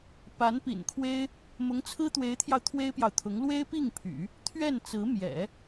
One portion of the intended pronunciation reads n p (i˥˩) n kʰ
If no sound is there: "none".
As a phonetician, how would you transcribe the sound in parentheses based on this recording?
ḭ˨˩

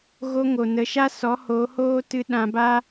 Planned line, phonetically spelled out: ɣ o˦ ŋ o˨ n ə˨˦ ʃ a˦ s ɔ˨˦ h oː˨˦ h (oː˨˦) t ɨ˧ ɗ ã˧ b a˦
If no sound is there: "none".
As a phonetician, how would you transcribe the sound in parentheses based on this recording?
oː˦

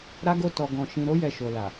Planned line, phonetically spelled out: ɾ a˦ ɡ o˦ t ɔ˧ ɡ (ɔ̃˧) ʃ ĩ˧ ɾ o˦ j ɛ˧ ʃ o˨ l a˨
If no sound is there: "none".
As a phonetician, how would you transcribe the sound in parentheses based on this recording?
ɔ̃˧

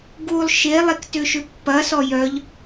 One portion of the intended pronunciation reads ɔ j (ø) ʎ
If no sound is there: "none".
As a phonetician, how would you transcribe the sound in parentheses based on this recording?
œ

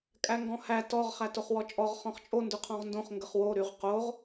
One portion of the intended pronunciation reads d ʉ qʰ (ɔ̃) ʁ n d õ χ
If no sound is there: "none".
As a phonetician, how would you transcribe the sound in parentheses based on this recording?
ɔ̃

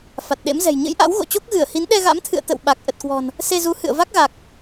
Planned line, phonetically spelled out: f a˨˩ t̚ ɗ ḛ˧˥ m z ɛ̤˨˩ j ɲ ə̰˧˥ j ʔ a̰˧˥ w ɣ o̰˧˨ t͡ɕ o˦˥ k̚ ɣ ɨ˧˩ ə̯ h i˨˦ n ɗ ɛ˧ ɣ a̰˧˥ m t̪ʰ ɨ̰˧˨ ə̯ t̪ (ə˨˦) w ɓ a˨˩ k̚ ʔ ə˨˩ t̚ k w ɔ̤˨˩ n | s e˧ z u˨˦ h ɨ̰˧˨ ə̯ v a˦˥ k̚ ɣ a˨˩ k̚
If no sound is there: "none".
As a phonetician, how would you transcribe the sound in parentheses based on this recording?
ə̰˧˨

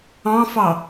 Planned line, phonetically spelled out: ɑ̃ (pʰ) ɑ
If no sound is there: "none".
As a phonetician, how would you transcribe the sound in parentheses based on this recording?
f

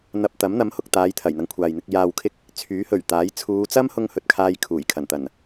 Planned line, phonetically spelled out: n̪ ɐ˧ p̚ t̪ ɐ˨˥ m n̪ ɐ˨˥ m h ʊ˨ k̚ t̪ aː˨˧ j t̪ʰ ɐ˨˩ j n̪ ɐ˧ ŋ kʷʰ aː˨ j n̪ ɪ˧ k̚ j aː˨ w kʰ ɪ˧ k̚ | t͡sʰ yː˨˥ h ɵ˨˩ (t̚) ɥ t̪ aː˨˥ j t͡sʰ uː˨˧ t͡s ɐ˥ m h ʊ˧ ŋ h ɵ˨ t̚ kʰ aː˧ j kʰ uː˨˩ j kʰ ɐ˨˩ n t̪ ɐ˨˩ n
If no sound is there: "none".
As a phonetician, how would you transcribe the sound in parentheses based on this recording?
none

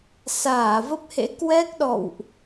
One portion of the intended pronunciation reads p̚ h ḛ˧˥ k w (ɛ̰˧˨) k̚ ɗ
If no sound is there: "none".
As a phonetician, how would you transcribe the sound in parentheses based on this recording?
ɛ˦˥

